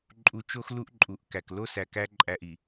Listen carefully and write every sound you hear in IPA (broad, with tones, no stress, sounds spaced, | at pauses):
ǃʼ u˨˦ t͡ʃ o˦ x l u˦ ʔ ǃʼ u˨ ʔ k æ˨ k l o˦ s æ˨ k æ˦ ǃʼ æ˦ ʔ i˨